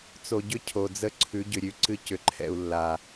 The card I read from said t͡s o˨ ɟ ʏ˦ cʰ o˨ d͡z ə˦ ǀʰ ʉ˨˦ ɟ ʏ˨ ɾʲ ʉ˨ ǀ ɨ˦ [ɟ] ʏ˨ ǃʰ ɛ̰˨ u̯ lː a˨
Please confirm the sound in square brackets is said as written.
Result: no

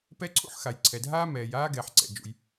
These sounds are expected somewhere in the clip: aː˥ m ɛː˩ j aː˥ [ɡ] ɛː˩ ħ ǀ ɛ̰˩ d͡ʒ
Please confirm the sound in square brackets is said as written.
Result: yes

